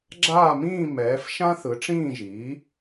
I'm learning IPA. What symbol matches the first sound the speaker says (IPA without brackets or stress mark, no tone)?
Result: ɡ͡ǁ